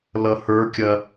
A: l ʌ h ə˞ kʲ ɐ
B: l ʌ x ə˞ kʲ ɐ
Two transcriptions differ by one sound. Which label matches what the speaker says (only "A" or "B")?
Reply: A